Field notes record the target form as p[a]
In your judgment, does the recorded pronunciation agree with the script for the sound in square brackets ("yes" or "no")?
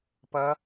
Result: no